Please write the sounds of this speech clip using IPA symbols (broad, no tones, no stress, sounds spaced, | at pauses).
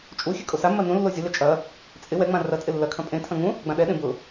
t͡ʃʼ u xʲ ø kʼ o s a mː ɐ n ũ lː o zʲ o l ɛ t͡ʃʼ ɐ | t͡sʼ ɪ w ɛ ŋ͡m ã r ɐ tʼ ɪ lː ɐ kʰ ɐ̃ pʼ ẽ tʰ ɐ̃ ŋ ũ | ɡ͡b ã ɗ ɛ ɗ ẽ b ʊ